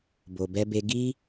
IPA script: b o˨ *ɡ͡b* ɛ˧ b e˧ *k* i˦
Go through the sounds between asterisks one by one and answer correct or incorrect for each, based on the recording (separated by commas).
incorrect, incorrect